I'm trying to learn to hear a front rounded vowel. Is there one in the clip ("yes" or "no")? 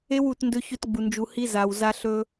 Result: no